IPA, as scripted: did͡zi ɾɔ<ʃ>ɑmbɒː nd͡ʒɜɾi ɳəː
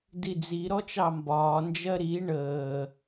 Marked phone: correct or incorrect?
incorrect